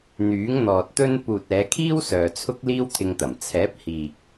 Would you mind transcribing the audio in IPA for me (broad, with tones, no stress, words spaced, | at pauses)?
n̪yː˨˥ŋn̪ɔː˨t̚t̪ɵ˥n puː˨t̚ɛː˨˧kʰiː˥w sœː˨t͡sʰʊ˥k̚liː˥w t̪ʰɪ˧ŋt̪ɐ˨˩m t͡sʰɛː˨˥p̚ hiː˨k̚